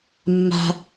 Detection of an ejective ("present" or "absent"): absent